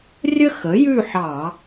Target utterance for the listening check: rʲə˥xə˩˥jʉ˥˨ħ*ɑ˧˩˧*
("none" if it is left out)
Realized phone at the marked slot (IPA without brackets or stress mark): ɑ˧˩˧